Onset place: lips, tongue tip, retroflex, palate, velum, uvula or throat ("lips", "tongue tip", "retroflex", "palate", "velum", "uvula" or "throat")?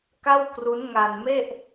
velum